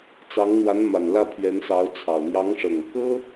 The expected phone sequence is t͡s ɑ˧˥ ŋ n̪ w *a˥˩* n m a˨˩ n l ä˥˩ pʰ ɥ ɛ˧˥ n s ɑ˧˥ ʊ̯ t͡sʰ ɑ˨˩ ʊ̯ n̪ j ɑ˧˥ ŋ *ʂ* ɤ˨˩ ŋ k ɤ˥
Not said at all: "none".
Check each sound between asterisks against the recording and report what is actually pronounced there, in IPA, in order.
a˧˥, ʂ

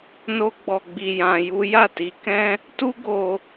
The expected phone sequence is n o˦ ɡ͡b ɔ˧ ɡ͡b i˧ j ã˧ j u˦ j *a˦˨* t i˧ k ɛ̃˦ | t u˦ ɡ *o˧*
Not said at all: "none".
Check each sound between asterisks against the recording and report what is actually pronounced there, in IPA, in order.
a˦˨, o˧

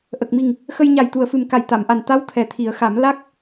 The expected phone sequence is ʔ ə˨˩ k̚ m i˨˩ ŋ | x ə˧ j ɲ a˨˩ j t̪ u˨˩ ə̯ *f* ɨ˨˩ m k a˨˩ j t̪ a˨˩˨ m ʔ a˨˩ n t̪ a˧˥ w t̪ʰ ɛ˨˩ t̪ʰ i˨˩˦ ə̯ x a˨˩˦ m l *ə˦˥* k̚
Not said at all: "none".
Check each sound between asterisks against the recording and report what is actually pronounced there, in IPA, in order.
f, a˦˥

